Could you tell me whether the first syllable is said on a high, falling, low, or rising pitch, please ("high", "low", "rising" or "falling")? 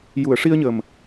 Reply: low